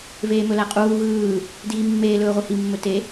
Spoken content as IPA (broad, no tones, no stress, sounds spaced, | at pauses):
v eː m ɵ l æ qʼ uː ɣ ɯː | d iː mː eː l ɵː ʁʷ i h i mː ɵ t e